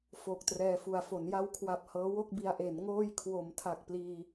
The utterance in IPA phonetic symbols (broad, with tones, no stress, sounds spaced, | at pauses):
f oː˨˩ k̚ t r ɛː˧ f u˨˩ a̯ f o˩˦ n j a˧ w kʰ w a˨˩ p̚ h ɤː˦˥ w o˥˩ k̚ b i˧ a̯ ʔ e˩˦ n ŋ oː˧ j kʰ w o˩˦ m tʰ a˨˩ k̚ p l iː˧